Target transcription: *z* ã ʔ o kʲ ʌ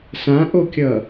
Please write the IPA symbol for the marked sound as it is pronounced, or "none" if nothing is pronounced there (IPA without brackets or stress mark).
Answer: s